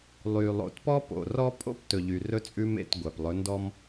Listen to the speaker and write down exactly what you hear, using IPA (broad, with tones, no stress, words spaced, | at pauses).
lˠy˨ lˠo̰˨tpɔ˦po̰˨ rɔ˦pʼo̰˦p tɵ˨ʎy˨rɵ˦t͡sʼʉ˦ mḛ˦˨t ɡʷæ˨plˠɵ˨˦ndɔ˦m